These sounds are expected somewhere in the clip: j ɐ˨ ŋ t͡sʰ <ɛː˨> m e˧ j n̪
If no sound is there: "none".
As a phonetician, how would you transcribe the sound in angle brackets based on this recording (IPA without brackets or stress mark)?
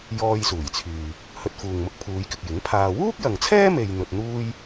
ɛː˥